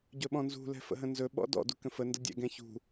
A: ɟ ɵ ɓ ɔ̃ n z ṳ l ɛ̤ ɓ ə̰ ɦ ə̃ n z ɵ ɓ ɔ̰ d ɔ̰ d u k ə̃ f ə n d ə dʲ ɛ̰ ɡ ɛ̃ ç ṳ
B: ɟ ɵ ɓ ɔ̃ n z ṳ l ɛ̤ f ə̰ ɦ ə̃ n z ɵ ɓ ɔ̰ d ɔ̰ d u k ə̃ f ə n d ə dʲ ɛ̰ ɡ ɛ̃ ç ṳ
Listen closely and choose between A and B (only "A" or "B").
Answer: B